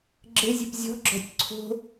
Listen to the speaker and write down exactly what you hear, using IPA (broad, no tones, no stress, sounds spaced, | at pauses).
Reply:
ɡ͡ǁ ɘ zʲ ɘ p zʲ ɔ̤ ɡ͡ǁ ɔ̤ tʲ ǀʰ o̤